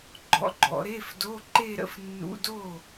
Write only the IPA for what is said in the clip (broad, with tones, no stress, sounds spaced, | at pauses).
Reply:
ɡ͡ǃ ɔ̰˧˥ ɡ͡ǃ ɔ̰˩˧ ɾ e˧˥˧ f d o˧˥˧ ǃ e˥˧ ɾ ə̰˥˩ f nː ṵ˧˥˧ d o˥˩